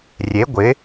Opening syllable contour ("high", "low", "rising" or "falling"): rising